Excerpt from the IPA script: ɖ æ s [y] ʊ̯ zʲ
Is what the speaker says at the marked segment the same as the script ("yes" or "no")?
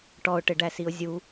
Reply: no